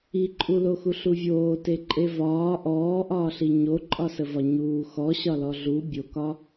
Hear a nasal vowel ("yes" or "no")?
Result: no